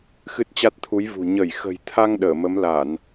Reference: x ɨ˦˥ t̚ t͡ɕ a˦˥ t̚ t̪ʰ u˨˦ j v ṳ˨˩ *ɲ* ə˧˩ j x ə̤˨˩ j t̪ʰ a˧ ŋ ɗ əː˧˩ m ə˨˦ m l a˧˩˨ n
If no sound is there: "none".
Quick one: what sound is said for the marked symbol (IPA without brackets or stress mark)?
ɲ